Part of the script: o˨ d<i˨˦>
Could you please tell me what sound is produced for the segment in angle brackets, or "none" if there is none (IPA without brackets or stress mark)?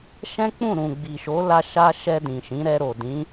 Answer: ĩ˨˦